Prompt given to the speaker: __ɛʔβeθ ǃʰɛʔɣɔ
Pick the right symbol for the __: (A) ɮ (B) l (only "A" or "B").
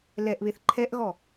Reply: B